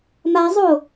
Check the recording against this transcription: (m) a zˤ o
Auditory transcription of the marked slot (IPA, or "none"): m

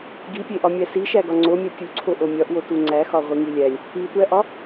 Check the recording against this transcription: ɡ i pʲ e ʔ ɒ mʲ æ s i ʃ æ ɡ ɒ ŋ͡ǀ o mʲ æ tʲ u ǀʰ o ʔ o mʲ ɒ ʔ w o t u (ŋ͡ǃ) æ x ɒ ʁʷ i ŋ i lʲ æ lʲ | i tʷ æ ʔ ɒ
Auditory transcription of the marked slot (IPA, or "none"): ŋ͡ǀ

